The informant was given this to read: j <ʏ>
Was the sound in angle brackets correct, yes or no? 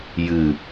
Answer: no